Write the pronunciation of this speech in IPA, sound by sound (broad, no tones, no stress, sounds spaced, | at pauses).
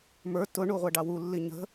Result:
m ə˞ t ʊ ɳ u ʁʷ æ ɖ ɑ w u lː i ɲ ə̤